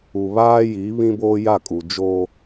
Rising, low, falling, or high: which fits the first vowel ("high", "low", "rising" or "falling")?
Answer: low